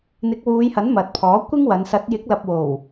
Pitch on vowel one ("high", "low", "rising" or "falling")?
rising